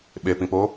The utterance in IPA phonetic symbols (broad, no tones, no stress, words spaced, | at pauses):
ɓepĩpo